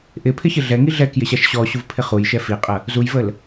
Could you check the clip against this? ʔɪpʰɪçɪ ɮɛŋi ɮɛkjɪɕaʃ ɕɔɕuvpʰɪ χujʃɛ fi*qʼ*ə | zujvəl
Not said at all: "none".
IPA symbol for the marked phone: qʼ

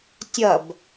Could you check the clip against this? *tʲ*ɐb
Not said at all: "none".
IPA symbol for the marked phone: tʲ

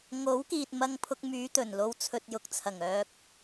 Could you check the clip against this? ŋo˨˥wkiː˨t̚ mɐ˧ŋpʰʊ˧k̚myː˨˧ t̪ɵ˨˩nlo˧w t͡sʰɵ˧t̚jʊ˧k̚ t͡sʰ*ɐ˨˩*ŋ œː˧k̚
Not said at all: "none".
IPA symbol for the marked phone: ɐ˨˩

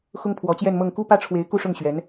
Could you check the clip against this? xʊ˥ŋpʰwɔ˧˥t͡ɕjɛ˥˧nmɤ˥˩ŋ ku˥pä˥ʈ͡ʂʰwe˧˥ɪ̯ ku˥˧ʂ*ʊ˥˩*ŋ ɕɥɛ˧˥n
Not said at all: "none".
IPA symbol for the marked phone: ʊ˥˩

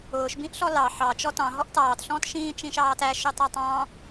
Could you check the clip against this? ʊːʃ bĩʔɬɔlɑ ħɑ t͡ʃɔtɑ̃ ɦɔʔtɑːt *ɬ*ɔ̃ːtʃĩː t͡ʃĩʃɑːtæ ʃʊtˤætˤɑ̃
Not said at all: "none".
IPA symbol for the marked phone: ɬ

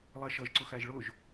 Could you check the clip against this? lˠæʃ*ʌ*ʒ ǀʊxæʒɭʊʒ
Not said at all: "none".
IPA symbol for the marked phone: ʌ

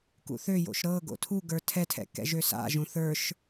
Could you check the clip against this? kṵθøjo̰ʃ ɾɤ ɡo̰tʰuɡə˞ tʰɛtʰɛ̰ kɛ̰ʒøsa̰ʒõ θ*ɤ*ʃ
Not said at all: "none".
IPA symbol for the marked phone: ə˞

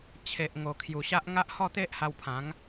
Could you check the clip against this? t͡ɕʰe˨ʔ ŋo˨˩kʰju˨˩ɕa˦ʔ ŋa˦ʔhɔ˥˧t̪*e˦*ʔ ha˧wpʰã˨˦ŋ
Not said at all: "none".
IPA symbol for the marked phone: e˦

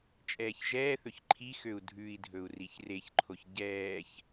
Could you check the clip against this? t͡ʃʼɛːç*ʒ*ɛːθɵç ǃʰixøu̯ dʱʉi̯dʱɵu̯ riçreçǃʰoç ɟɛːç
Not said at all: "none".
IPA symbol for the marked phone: ʒ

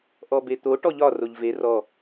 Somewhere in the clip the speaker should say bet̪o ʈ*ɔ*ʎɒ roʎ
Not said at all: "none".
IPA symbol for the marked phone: ɔ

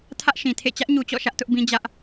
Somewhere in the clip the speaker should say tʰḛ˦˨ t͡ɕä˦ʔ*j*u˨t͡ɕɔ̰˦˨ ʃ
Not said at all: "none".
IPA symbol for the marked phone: ɲ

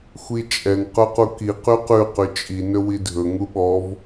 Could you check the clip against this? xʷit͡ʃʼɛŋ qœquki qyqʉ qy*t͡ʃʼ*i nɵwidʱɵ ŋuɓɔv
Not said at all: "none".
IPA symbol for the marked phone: t͡ʃʼ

